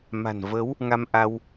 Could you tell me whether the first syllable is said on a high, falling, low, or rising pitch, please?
low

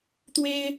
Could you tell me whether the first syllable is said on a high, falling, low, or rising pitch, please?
high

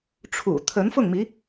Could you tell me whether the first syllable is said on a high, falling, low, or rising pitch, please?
low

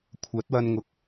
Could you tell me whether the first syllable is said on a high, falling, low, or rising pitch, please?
rising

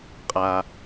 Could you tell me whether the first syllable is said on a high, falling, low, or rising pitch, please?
low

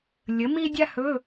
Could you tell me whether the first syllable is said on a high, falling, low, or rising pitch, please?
rising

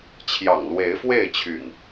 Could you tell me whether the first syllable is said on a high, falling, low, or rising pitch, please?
low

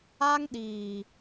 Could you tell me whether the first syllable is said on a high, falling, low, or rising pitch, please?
high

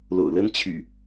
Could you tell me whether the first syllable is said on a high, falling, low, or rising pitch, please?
low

